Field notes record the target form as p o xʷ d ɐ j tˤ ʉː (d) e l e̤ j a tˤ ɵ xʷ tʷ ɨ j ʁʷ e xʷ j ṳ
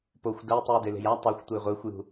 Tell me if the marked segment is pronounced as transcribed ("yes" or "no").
yes